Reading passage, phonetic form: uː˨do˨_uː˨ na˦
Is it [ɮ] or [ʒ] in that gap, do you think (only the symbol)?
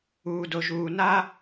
ʒ